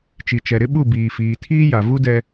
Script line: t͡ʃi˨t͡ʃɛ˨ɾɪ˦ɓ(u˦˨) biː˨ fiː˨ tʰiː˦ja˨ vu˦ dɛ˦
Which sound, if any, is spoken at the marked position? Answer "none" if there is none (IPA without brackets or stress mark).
u˦˨